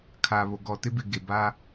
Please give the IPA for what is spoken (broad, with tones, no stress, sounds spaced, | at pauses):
kʰ a˨ β o˨ ɡ ɔ˨ t ɪ˦ b ɪ˨ ɡ e˨ b aː˦